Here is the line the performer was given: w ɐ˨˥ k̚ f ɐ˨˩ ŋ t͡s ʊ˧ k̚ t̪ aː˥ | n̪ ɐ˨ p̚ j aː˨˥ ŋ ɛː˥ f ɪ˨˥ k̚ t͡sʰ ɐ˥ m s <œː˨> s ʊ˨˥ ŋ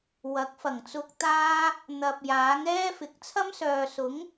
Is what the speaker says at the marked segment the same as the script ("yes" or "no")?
yes